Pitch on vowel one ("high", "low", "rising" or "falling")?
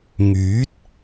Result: rising